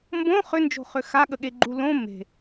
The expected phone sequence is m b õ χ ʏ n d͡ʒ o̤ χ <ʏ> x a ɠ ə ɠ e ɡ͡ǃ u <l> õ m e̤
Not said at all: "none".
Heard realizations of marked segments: ʏ, l

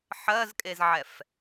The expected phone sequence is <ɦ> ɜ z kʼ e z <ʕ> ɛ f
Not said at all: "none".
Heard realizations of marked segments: ħ, ʕ

